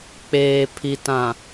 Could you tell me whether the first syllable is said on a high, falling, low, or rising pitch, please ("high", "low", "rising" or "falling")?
low